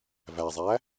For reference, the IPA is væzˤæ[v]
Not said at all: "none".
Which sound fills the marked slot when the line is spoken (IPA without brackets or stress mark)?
none